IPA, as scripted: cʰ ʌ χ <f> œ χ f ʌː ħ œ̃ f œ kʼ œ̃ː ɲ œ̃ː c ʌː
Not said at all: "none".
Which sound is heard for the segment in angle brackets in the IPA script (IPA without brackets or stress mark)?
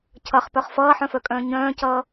p